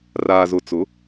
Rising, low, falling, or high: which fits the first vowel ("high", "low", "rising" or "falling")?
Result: low